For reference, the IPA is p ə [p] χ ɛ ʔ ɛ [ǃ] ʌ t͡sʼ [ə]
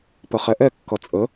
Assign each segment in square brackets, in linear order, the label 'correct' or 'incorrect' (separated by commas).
incorrect, incorrect, correct